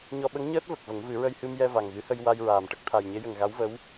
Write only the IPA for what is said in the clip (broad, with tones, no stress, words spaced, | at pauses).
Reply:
ɲɔ˧ ɓə˧˥ŋɲəː˦˥t̚ və˨˩k̚və˨˩˦ŋvɨ˨˩˦ ɹə˧jhɨ˧m jɛ˧va˨˩ŋɣɨ˨˩˦hə˧j wa˧jɹaː˨˩m ʈə˦˥k̚t̪ʰa˨˩jɲe˧˥jə˨˩ŋ ɣa˧˥wvə˧˥w